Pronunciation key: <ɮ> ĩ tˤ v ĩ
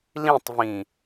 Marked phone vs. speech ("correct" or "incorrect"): incorrect